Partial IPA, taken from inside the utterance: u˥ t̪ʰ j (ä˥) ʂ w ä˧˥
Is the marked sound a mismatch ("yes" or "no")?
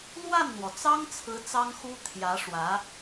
yes